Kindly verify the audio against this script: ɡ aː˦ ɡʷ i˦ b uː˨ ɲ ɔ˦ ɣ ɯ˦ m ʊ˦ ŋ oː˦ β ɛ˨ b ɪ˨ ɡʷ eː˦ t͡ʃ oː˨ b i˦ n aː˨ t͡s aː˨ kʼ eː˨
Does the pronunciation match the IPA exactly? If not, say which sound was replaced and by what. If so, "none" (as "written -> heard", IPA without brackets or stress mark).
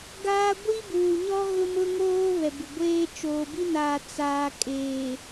ɯ˦ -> ʊ˦